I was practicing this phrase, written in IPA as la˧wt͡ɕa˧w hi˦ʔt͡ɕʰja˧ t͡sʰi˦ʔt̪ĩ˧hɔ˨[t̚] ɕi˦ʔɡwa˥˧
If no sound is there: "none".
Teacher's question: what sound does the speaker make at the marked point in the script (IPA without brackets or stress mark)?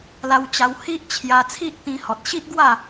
t̚